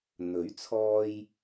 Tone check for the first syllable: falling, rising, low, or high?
rising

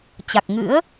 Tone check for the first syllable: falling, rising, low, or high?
low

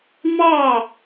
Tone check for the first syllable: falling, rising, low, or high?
falling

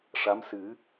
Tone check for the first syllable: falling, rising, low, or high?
rising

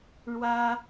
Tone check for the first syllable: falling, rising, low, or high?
high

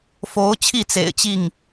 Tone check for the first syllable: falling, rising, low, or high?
rising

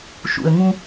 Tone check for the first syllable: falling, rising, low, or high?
low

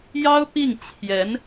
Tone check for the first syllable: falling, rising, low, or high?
high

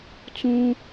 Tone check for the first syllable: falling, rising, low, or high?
high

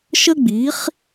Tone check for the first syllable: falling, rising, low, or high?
high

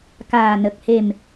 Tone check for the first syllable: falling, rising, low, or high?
low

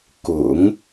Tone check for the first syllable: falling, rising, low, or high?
low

